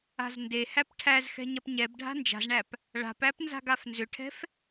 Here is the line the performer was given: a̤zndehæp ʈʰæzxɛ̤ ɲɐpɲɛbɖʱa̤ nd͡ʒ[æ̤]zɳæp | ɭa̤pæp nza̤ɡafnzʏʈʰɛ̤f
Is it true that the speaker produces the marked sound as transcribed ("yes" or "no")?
no